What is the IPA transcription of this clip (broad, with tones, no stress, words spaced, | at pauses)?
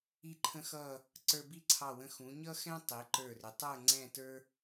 i˧˩ǃʰə̃˧xʌ˧˩ | ǀə˞˧bi˥˧ǀʰɑ˧˩wə̃˧ xũ˩˧ɲʌ˥xɛ̃˥ tˤi˩˧ǃə˞˧˩rɪ˩˧ tˤə˞˥˧ŋ͡ǀɛ̃˥˧tə˞˥